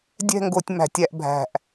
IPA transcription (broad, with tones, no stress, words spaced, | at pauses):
dʲɛ̤˥˧ŋɡo˧˩˧tʲ mæ̤˧˩˧tʲæ˧ʔbʱæ̤˨˩ʔ